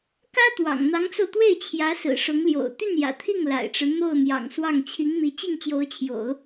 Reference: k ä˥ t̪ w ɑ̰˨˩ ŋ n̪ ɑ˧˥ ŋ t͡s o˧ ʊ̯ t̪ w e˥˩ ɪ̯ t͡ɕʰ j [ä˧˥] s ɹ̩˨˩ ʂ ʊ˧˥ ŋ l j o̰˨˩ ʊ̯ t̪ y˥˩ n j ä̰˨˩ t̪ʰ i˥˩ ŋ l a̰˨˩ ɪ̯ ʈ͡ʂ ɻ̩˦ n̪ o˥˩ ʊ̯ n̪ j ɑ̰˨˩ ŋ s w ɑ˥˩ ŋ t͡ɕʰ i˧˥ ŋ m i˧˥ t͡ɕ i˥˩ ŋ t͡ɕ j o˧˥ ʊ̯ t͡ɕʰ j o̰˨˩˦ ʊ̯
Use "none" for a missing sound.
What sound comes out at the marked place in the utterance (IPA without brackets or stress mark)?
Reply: ä˧˥